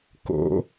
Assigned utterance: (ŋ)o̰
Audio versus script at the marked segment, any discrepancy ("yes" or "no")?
yes